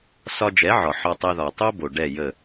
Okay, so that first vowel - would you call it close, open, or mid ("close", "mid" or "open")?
open